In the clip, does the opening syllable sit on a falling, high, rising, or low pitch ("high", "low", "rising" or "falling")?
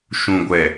low